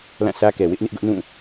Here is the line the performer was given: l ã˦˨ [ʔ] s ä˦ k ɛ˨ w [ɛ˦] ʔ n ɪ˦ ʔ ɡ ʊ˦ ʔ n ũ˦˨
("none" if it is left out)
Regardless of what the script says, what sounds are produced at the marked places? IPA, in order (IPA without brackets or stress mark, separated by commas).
none, ɪ˦